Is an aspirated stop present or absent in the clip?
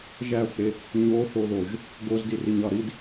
absent